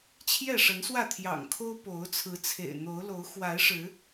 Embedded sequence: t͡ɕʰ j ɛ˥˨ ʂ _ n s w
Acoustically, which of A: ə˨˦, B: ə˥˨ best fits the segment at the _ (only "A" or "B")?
A